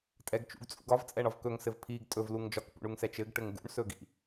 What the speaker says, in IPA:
tʼ ɛ ɡ t͡ʃ ṵ ɡ t͡sʼ ṵ ɡ ɒ v t͡sʼ ɛ ɳ ɒ v k ɵ ŋ s ɘ v pʰ i ɡ tʼ ɵ v l u ŋ d͡ʒ ɒ k p ṵ ɳ u ŋ s ɛ t͡ʃ ɘ ɡ ʈ ɘ ŋ ɡ ṵ ɳ s ɵ ɡ ḭ

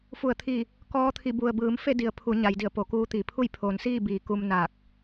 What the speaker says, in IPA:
f u˧˩ ə̯ t̪ʰ iː˧˩ | k ɔː˧˥ t̪ʰ i˧˩ b u˩ ə̯ b ɯː˩˧ m f e˥˨ d i˩˧ ə̯ pʰ u˩˧ ɲ a˩˧ j d i˧˩ ə̯ p o˩˧ k uː˧ t̪ i˩ pʰ u˥˨ j pʰ oː˩˧ n s iː˥˨ b iː˩˧ k u˧ m n aː˧˩ k̚

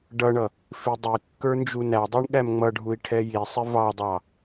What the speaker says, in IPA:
ɖ ʌ ɳ ʌ | f i dˤ i kː ə˞ n d͡ʒ u n æ dˤ ə˞ ɳ ɠ æ m ŋ͡m ʌ ɖʱ u i̯ ʈʰ ɛ j i sˤ ɪ v ɑ dˤ ɑ

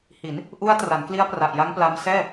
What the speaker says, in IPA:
h i˩˦ n | ʔ u˦˥ a̯ t r a˩˦ n k l i˦˥ a̯ p r a˨˩ ʔ j a˦˥ ŋ p l a˧ m s ɛː˥˩

